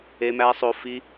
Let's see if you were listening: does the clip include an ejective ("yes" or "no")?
no